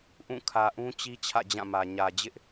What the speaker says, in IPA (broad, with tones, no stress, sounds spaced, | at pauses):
ʔ ũ˦˨ kʰ ä˨ ʔ ũ˦ t͡ɕ i˦ t͡ɕʰ ä̰˦˨ d͡ʑ ã˦˨ m ä˨ ɲ ä˨ d͡ʑ ɪ˦ ʔ